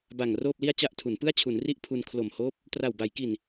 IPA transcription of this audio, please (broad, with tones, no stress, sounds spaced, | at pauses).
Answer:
b a˨˩ ŋ r oː˥˩ p̚ l i˥˩ a̯ t͡ɕ a˥˩ ʔ tʰ u˩˦ n p ɯ˥˩ a̯ t͡ɕʰ u˩˦ n r i˥˩ ʔ pʰ u˧ n kʰ l o˨˩ m h oː˦˥ p̚ | t r a˨˩ w b a˩˦ j k i˨˩ n